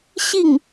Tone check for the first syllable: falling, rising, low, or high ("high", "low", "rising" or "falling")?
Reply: falling